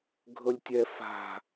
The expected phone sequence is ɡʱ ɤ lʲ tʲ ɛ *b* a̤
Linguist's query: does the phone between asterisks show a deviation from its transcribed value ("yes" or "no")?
yes